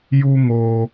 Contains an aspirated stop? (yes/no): no